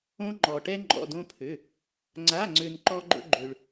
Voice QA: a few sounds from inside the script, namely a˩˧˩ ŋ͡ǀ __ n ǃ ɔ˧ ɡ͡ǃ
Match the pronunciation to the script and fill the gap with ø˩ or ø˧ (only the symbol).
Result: ø˩